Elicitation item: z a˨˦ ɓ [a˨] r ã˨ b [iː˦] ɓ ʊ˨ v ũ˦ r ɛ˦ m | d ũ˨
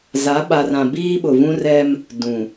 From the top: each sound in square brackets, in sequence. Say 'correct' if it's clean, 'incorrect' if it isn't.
correct, correct

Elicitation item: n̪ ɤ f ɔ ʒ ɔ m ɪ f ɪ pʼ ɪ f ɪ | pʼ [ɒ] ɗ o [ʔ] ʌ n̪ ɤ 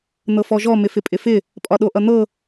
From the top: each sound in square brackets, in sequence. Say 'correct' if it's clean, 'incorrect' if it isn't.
correct, correct

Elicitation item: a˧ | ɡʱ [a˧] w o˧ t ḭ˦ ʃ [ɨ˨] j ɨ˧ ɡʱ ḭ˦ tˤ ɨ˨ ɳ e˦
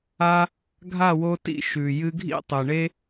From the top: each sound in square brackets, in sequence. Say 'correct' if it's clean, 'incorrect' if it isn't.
incorrect, incorrect

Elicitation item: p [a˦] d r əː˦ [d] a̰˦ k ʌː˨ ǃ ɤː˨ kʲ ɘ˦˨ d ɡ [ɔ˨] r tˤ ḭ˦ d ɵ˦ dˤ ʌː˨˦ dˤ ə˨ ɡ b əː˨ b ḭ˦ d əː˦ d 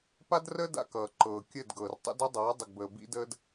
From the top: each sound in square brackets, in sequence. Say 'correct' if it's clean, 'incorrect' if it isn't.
correct, correct, incorrect

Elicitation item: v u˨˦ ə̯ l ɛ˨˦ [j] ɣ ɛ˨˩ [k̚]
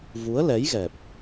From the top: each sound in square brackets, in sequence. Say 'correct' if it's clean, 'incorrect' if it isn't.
correct, incorrect

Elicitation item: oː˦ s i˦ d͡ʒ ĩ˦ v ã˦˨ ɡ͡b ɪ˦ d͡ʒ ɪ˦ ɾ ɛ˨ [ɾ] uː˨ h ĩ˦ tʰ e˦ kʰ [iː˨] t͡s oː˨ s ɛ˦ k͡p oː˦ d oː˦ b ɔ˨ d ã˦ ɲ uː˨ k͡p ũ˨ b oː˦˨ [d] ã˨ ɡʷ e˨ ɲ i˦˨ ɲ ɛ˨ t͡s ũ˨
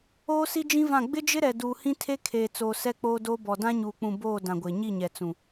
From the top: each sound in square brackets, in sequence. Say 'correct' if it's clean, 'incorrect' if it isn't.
incorrect, incorrect, correct

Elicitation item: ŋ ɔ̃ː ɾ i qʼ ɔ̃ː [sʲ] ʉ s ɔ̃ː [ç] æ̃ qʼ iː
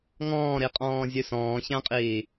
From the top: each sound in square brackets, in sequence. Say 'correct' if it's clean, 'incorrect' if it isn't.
incorrect, correct

